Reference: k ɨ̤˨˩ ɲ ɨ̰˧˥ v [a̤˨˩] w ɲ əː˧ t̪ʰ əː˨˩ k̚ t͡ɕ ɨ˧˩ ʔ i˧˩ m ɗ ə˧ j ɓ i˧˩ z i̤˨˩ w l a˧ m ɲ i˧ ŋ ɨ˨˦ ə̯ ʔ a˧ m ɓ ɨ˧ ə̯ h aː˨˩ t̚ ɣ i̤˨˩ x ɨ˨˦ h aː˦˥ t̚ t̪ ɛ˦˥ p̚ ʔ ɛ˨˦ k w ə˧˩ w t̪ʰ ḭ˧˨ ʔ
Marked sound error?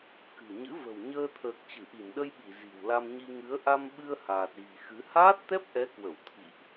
yes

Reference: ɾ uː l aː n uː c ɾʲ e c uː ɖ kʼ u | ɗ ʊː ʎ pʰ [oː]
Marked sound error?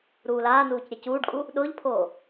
no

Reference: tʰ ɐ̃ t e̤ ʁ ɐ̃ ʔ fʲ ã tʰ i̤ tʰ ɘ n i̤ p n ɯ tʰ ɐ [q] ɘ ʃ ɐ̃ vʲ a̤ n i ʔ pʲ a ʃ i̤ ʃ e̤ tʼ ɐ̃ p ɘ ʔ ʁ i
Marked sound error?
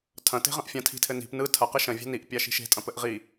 no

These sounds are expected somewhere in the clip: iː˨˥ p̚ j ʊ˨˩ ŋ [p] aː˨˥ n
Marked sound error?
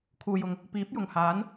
yes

